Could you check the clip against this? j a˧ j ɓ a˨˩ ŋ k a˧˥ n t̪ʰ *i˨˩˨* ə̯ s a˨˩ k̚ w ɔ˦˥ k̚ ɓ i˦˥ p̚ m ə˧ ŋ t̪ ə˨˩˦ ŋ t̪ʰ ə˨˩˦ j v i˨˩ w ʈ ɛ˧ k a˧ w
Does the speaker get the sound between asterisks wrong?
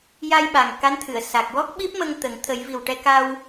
yes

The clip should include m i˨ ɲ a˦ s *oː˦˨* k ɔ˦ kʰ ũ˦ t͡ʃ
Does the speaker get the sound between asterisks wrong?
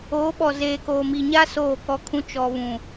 no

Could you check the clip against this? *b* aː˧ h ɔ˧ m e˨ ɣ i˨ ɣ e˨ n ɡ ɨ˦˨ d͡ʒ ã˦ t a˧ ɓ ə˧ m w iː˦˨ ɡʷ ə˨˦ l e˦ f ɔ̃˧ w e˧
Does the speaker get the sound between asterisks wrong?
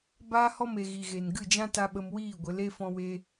no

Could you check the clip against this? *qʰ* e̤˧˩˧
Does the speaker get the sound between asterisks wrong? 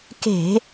yes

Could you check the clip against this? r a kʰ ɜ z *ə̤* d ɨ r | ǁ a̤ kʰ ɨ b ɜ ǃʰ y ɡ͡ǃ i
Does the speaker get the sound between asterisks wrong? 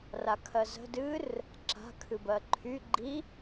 no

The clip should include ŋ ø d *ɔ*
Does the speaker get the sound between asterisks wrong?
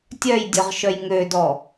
no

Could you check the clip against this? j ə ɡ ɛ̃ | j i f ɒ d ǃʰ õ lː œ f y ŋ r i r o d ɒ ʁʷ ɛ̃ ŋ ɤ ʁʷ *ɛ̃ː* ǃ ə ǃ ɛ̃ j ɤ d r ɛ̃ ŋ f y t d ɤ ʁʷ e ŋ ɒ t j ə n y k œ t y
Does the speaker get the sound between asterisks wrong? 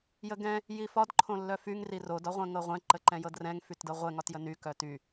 yes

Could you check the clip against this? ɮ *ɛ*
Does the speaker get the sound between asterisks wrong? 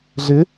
yes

